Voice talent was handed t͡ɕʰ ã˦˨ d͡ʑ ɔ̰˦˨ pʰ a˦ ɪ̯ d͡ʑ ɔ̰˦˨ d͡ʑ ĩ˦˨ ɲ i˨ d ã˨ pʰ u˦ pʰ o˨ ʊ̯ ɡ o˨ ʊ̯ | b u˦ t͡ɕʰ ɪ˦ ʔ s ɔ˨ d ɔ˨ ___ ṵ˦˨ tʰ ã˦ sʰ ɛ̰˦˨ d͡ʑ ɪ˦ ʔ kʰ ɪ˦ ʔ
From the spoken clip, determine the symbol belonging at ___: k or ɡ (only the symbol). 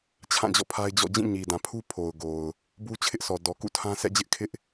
k